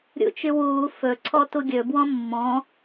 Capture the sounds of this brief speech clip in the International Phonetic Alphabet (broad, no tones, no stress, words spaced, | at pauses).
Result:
ɾʲṵt͡ʃywuː fɵ ǀʰɔtuɡʲɵ bwɔ̃mːɔ̃